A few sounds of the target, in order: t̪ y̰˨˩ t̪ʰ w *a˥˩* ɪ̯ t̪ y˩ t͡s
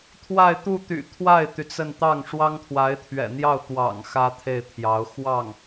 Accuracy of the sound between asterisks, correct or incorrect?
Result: correct